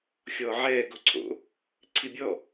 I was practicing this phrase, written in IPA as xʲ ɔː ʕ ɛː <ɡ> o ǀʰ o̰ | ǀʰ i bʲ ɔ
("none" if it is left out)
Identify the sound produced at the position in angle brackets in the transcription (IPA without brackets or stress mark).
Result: ɡ